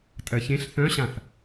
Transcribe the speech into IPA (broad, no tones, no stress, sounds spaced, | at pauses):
tʼ ɜ ç ẽ ɬ θ œ̃ ɕ ã θ